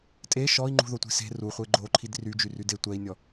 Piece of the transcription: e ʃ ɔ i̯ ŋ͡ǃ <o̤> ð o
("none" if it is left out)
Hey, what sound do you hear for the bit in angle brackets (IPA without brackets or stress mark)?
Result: ṳ